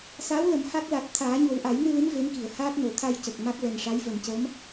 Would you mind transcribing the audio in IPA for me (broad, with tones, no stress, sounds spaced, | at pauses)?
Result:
s aː˧˥ w l ə˨˩˦ m h a˦˥ k̚ l a˨˩ t̚ t̪ʰ aː˨˩˦ ɲ o˨˩ w ʔ a˨˩˦ j n ɨ˧ l ɨ˧˥ m v e˧˥ m k i˨˩˨ ə̯ h aː˦˥ t̚ n o˨˩˨ t̪ʰ a˧ j c ə˨˩ k̚ m a˦˥ k̚ l ɛ˨˩ n ʂ a˧˥ j v ə˨˩ m c əː˧˥ m